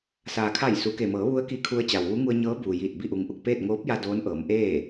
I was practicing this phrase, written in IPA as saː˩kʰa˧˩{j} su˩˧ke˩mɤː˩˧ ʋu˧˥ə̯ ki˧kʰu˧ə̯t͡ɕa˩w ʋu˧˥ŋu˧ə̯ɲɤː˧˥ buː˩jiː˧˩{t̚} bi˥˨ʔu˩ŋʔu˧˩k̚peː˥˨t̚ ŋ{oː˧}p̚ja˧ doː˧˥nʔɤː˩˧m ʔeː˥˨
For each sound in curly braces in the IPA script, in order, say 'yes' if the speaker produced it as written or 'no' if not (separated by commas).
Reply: yes, yes, no